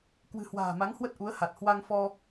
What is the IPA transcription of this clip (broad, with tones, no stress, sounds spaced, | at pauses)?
k w ɨ̤˨˩ h w a̤ː˨˩ m a˨˦ ŋ h w ə˦˥ t̚ ʔ u˨˦ ə̯ h a˨˩ t̚ h w a˧ ŋ f ɔ˧